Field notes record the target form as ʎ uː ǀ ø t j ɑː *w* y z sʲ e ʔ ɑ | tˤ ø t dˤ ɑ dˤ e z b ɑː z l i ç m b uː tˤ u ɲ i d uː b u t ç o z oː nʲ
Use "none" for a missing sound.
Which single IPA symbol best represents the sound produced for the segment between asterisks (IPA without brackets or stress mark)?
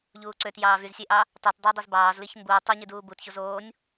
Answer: v